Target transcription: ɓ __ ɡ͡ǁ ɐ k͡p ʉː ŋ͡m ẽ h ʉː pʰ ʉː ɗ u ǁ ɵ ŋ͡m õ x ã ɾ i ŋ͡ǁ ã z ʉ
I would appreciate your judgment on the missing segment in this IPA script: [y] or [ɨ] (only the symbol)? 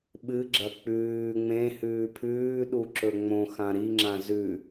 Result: ɨ